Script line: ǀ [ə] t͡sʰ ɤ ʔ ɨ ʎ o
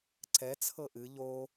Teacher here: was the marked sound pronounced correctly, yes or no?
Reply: no